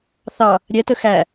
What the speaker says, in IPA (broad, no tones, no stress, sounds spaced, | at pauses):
θ ɑ | ɾʲ ɛ t ə x æ